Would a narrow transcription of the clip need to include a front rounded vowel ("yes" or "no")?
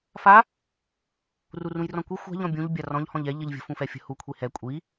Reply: no